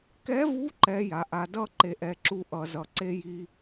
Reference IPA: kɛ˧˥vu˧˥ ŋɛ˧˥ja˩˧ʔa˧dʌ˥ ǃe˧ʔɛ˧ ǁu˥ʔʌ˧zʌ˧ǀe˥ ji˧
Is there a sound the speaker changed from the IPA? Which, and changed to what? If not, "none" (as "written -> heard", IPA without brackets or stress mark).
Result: ŋ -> ǃ